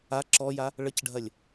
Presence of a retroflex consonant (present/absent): present